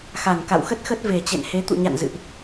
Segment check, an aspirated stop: absent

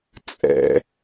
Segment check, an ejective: present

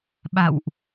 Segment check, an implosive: present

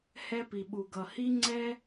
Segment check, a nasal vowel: absent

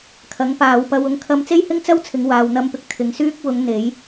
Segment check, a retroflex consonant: absent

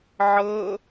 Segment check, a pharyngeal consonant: present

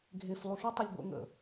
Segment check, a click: absent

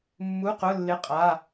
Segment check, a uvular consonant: present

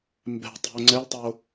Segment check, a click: present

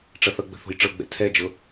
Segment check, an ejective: absent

